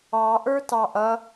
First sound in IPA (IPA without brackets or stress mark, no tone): ɑ